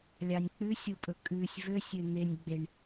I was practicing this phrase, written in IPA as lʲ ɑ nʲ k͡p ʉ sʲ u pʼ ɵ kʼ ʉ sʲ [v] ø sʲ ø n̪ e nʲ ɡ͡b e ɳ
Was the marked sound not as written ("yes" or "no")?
no